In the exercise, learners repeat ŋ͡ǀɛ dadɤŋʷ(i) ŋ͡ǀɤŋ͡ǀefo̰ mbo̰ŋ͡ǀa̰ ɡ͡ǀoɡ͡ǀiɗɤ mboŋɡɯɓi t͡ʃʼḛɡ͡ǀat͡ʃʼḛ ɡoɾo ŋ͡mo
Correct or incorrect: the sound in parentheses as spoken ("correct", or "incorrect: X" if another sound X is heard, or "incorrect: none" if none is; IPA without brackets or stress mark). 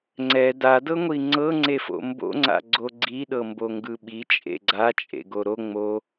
correct